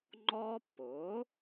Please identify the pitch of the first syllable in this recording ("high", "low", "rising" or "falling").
high